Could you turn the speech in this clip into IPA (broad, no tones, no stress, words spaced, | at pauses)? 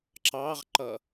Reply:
ǁɑʁǃʌ